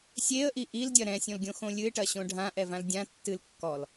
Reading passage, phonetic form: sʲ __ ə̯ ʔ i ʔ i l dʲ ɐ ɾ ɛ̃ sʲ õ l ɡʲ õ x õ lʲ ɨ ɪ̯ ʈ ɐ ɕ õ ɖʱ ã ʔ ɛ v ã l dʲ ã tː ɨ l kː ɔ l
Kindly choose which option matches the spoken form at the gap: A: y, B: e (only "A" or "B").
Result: B